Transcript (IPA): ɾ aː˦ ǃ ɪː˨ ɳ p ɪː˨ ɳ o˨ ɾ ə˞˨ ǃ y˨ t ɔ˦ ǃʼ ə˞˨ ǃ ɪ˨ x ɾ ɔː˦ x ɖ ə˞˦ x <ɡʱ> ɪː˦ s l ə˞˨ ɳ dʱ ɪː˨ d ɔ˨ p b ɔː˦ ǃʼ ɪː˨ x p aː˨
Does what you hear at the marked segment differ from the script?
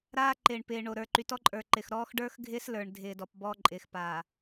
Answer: no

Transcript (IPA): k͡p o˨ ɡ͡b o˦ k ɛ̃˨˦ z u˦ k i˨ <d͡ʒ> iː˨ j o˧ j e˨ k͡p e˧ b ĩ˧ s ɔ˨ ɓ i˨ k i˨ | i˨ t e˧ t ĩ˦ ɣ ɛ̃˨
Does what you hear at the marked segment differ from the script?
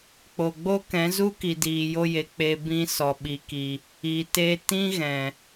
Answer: yes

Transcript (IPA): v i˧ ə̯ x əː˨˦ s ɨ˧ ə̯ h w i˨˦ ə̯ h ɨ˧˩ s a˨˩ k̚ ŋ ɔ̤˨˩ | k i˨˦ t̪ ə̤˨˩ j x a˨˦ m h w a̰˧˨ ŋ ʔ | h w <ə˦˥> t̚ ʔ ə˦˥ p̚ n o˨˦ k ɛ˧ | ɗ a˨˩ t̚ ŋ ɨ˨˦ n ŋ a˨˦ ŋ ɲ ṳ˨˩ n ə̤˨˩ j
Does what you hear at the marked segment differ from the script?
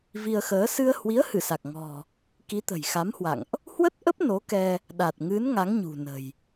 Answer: no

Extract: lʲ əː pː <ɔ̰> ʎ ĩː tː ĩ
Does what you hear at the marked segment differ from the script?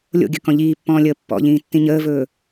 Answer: no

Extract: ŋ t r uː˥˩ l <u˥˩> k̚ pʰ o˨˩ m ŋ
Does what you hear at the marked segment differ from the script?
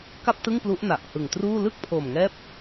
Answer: yes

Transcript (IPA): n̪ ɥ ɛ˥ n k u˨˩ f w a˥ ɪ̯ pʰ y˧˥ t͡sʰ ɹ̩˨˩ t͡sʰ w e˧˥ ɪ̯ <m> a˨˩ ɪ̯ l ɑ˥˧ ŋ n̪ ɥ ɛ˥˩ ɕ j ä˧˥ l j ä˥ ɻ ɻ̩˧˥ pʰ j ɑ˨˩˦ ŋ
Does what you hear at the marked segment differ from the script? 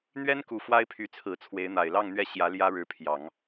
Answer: yes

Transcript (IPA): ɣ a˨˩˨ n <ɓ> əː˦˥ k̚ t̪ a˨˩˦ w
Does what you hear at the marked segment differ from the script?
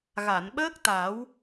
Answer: no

